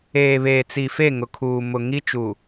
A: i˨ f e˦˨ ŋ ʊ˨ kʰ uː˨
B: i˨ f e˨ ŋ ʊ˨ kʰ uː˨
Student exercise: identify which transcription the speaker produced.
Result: A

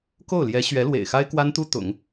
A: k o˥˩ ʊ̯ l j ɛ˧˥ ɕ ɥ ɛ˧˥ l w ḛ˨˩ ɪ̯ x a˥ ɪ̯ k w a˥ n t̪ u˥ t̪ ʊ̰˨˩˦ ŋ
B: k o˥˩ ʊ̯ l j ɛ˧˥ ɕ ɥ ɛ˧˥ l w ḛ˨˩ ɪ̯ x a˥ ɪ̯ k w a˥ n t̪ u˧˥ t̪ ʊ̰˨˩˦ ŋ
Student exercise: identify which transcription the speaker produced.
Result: A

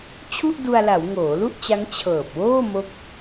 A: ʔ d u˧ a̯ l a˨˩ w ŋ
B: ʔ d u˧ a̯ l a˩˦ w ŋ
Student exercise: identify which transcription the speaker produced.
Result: B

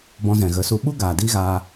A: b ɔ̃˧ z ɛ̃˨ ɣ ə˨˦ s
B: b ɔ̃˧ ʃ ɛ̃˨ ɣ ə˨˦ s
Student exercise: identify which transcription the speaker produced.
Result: A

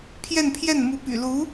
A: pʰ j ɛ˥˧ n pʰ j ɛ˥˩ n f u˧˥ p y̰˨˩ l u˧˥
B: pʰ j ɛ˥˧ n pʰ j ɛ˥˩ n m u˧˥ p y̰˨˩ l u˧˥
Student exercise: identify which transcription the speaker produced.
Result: B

